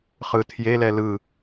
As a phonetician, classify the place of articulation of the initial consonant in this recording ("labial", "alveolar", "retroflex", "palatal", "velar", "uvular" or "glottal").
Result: uvular